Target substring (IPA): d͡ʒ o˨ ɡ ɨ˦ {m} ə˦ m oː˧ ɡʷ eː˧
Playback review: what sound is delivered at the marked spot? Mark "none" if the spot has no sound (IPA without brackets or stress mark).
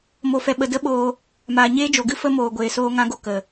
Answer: f